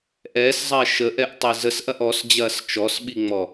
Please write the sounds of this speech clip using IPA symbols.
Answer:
ʔ ɛː s zˤ ɐː ʃ ə ʔ ɛ ʔ tˤ e z ə s ʔ ɐ ʔ ɔ s d͡ʑ ɐː s t͡ʃ ɔ s ɓ i ŋ͡m ɔ

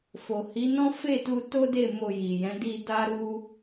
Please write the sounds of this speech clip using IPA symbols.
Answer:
f o˨ h i˨˦ n ɔ̃˦ f e˦˨ t u˧ t o˦ d e˦˨ m o˧ j i˨ j ɛ̃˨˦ d i˧ d a˦ ɾ u˦

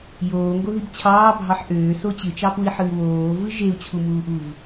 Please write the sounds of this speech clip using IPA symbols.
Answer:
j oː ŋ ɡ o ð i b t͡ɕʰ ɑː bʱ ɑ ħ ʔ øː s o t͡ɕ ɯ t͡ʃ ɑ p u i̯ ħ ɯ y̯ w oː v ɯ ʒ e u̯ t͡ɕʰ u m uː ʔ u v

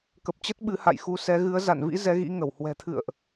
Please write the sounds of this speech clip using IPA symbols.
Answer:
k ə˨˩ p̚ t͡ɕ ə˦˥ t̚ ɓ ɨ˨˦ h a̰˧˨ j x u˨˦ s ɛ˨˦ ɣ ɨ˨˦ ə̯ z a̰˧˨ n v ḭ˧˥ z ɛ˨˦ ɣ ḭ˧˥ ŋ ə˧˩ w h w ɛ̤˨˩ t̪ʰ ɨ̰˧˨ ə̯ ʔ

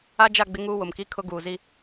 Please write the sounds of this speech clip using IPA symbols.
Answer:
a˦ d͡ʒ a˦˨ ɡ͡b ɪ˦ ŋ uː˦ w ʊ˨ m k i˦ kʰ ʊ˦ ɡ uː˨ z i˦

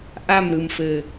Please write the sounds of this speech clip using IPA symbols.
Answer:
ʔ a˦˨ m ɾ ɯ˨ m f ɘ˨

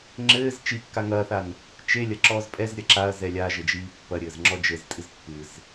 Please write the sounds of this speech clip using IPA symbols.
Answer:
ŋ͡ǁ ɘː z t͡ʃ i kː a ŋ ɐː θ a n | t͡ʃ e lʲ ɐ ǁ ɔː z pʼ ɛ z ɾʲ ɐ ǁ a ɐ̯ z ɛ lʲ a ʒ ɘ d͡ʒ iː pː ɐ ɾʲ ɘː z ŋ͡ǁ ɔ d͡ʒ ɘ z tʼ ɨ z pː ɨ z

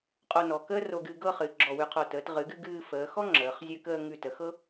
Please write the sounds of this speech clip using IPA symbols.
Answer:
qʼ o˧ n ɔ˩˧ k əː˥ r o˧ ɡ ɨ˧ ɡ ɤ˥˧ χ ɨ˩˧ ɡ͡ǁ ɔ˧˩ w ʉ˧ qʰ o˧˩ t əː˩˧ t ʁ ɨ˩˧ ɡ ɨ˧ ɡ ɨː˧ f əː˩˧ x ɔ˥ ŋ͡ǁ əː˩˧ χ zʲ ʉ˧ k əː˧ ŋ ʉ˧˩ t ə˩˧ x ɤ˥

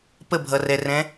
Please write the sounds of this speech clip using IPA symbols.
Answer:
p ə bʱ ʌ r ɛ r ɛ̃

